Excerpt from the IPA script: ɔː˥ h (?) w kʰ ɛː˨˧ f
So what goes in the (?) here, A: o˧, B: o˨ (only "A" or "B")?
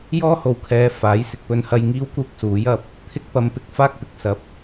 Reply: B